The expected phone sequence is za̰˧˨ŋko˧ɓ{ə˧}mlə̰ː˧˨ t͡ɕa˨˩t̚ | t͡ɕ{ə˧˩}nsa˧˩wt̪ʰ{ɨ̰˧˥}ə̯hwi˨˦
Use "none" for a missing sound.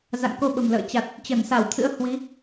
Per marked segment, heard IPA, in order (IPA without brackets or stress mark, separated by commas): ə̤˨˩, ə˧˩, ɨ̰˧˥